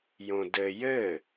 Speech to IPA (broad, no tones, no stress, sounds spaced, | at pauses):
j õ d ɘ j ɘ